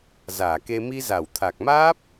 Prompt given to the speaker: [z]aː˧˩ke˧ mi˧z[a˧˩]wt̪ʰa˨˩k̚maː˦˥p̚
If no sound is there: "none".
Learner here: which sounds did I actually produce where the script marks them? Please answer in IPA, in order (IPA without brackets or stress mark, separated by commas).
z, a˧˩